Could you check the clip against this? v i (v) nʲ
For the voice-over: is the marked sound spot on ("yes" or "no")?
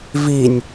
no